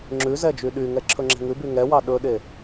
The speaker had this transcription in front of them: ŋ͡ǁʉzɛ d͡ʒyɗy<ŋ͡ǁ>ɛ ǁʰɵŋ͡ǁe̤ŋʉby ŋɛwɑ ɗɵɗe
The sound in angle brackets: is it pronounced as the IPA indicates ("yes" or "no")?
no